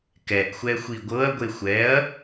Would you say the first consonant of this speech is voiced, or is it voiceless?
voiceless